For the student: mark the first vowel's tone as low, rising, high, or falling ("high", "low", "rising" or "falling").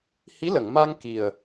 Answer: rising